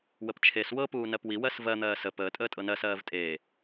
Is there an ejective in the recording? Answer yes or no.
yes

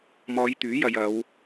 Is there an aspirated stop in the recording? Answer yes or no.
no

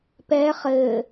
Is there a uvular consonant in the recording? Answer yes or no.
yes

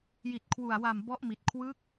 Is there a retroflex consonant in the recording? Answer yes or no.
no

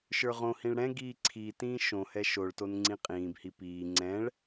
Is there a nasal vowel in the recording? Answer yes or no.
yes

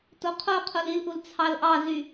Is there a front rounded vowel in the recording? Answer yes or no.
yes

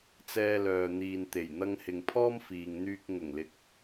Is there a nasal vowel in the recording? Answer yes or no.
no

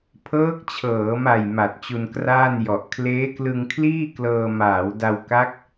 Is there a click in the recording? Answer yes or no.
no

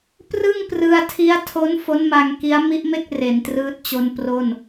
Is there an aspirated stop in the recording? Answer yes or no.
yes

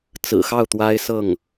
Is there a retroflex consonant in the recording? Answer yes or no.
no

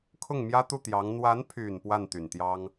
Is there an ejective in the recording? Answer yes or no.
no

